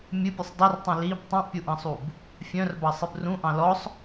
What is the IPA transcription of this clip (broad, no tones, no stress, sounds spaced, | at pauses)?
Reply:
mʲ ɨ pʲ u sˤ dˤ ɨ r tˤ ĩ l i b tˤ ũ ʔ pʲ u ʔ ɑ̃ sˤ u b | fʲ œ̃ r b ɑ sˤ ɨ b r ũ ʔ ɑ̃ l ɔ sˤ